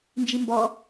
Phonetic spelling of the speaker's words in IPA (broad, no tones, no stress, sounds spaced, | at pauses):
n d͡ʒ i m b ɔ